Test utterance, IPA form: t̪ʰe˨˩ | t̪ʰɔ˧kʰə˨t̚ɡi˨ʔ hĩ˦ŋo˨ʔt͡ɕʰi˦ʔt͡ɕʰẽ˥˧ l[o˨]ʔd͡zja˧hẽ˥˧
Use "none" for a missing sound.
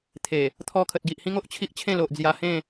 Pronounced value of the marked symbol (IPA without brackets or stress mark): o˨